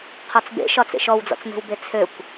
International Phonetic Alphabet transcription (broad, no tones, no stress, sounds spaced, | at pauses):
qʰ ɔ t͡s b ḛ ʃ ɒ t͡s ḛ ʃ ɔ w d͡z ɔ̰ t͡s m e̤ w b e t͡sʰ ø kʷ